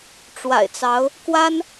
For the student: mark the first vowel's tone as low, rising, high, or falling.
low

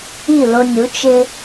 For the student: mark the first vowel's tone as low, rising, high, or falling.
falling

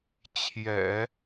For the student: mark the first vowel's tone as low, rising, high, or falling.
low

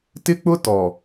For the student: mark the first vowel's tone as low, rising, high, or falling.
high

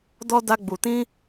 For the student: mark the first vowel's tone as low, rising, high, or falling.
high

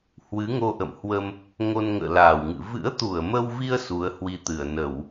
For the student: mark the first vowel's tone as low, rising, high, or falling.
rising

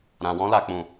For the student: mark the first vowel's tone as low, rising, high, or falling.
low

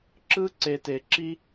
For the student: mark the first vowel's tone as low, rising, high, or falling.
high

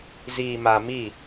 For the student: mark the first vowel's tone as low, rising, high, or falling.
low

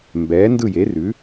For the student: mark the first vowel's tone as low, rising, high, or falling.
rising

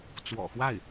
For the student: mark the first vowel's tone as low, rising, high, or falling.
low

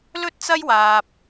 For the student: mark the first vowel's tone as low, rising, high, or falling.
high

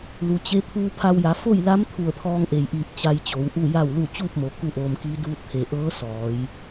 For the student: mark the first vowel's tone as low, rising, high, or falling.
low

